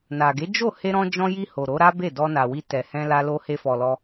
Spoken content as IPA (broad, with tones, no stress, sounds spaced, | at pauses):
n a˨ ɡ e˨˦ d͡ʒ o˦˨ h e˧ ɾ ɔ̃˧ d͡ʒ ɔ̃˧ j i˧ h o˨ ɾ o˨˦ ɾ a˦ b e˦˨ d ɔ˧ n a˨ w i˧ t ɛ˨ h ɛ̃˧ l a˧ l o˧ h e˧ f ɔ˨ l ɔ˧